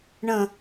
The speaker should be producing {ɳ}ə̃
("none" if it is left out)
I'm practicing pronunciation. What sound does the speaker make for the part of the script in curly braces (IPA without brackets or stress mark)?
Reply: ɳ